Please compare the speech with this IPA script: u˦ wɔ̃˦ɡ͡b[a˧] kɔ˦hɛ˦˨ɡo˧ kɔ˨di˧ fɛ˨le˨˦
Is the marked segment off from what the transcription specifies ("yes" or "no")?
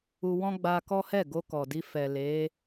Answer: no